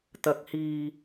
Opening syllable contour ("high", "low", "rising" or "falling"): rising